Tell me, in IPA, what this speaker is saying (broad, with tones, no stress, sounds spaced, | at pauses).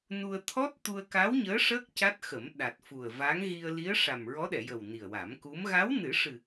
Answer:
n u˧ ə̯ t̪ʰ ɔ˦˥ t̚ t̪ u˧ ə̯ k a˧˥ w ɲ əː˧˥ ʂ əː˦˥ k̚ c a˦˥ t̚ x ə˨˩˦ m ɗ a˨˩ t̚ f u˨˩ ə̯ v a˧˥ ŋ ɣ i˧ ə̯ l i˧˥ ə̯ ʂ a˨˩ m ɹ ɔ˧˥ ɗ ɛ˨˩˨ j ə˨˩ w n i˨˩ ə̯ w a˨˩˦ m k u˧˥ m ɣ a˧˥ w n ɨ˨˩˦ ʂ ɨ˨˩